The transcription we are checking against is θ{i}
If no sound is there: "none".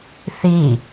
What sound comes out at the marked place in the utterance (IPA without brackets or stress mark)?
i